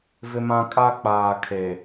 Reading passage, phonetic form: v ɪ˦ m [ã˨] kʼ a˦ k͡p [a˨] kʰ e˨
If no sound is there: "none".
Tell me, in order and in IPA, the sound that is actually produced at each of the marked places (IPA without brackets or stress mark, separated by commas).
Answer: ã˦, aː˨